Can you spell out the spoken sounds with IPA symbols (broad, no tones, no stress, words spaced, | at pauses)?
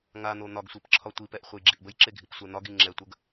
ŋan̪o n̪ɒɡsʷip ǁʰɒtʷipɛʔ χʷejɡ͡ǁiʔbəjǁe ɡʱipsʷɛn̪ɒɡi ŋ͡ǁɛtʷəɡ